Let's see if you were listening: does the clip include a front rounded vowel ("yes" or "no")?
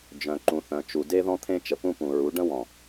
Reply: yes